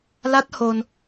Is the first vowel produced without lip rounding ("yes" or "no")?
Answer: yes